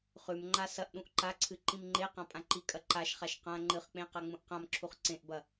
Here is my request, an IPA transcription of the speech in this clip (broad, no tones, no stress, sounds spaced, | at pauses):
χ ʉ m ŋ͡ǃ a s ɐ ʔ ɗ ũ ʔ ǃ a ǀʰ ɨ ǃ ĩ m ŋ͡ǃ e q ã pʼ ã ǃ i kʼ ɐ ǃ a ʃ χ a ʃ q ã ŋ͡ǃ ɨ χ k͡p ẽ q a ŋ͡m ũ ʔ q ã m ǁʰ u χ ǀ ẽ ʔ b ɐ